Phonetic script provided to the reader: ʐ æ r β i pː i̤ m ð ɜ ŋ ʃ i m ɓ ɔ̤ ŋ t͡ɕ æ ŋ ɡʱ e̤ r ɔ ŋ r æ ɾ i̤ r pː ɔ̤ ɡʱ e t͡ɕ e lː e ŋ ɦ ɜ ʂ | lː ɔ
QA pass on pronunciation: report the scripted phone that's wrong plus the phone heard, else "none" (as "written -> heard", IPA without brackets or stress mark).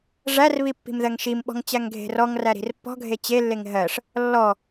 none